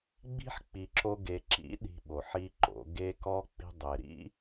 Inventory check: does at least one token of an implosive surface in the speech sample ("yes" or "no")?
yes